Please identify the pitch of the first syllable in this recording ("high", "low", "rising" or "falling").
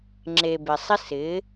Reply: low